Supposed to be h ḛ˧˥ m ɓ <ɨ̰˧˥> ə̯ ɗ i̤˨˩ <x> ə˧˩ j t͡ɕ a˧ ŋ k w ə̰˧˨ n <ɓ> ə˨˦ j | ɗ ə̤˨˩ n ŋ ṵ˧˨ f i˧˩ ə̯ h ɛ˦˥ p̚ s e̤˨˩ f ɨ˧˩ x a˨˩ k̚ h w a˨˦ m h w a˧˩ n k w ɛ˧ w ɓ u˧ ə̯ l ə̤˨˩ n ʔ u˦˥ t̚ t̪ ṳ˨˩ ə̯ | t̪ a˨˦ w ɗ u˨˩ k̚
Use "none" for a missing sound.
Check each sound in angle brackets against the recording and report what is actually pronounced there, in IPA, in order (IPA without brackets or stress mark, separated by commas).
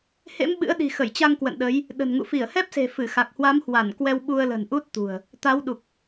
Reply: ɨ̰˧˥, x, ɗ